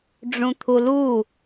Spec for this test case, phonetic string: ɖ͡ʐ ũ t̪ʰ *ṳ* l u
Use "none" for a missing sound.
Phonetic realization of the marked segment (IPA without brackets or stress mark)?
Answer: u